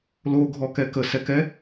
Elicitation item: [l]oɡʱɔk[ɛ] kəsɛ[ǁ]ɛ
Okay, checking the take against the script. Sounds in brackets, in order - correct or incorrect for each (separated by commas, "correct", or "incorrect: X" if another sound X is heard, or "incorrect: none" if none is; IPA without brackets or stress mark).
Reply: correct, correct, incorrect: k